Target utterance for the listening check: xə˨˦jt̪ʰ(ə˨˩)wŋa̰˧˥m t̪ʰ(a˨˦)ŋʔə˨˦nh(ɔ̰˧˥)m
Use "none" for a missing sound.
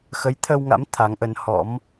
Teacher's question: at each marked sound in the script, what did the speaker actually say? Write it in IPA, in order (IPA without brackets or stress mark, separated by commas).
ə˧, a˨˦, ɔ̰˧˥